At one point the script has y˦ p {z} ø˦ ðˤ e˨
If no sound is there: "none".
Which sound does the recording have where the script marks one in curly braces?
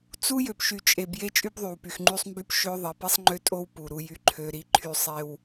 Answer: ʃ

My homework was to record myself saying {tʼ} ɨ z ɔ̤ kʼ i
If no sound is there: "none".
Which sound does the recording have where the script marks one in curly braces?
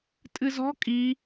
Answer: tʼ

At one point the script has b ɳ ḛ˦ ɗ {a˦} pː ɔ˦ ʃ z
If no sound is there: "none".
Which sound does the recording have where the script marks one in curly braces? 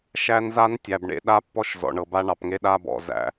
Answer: a˦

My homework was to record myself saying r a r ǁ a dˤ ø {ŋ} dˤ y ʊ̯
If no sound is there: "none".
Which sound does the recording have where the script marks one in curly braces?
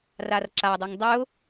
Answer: ŋ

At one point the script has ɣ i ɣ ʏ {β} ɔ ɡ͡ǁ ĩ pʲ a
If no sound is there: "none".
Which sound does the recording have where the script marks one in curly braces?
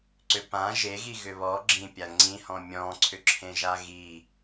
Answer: β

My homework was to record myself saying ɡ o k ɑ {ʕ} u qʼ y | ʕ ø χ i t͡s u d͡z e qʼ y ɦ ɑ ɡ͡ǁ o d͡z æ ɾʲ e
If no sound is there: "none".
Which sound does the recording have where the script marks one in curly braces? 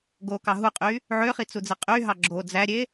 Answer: ɦ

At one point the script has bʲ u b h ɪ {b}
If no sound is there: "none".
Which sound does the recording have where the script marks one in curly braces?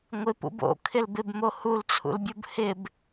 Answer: b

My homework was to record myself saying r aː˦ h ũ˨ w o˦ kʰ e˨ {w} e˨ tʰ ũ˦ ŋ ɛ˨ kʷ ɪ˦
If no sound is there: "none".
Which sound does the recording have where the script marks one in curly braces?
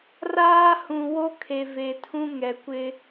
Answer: v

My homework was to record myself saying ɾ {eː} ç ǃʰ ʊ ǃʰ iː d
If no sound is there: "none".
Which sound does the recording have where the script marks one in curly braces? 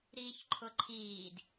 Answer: iː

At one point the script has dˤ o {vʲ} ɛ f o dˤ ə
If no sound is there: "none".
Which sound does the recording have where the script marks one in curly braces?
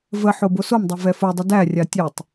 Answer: v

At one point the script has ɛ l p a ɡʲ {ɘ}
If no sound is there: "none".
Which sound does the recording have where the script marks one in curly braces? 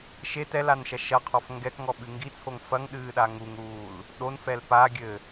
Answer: ɘ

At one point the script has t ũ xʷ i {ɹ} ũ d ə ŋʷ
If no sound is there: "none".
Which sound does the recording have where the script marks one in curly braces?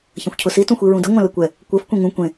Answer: ɹ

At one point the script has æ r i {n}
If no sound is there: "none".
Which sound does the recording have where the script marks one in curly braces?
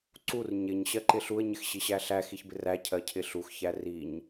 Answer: ɲ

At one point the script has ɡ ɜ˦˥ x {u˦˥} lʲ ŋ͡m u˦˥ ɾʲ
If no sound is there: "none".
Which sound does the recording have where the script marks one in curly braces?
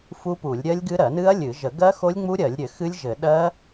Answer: o˦˥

